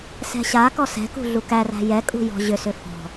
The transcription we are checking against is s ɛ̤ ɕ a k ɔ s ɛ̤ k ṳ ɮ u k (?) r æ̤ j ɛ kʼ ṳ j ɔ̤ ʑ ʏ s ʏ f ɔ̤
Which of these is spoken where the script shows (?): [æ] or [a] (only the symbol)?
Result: æ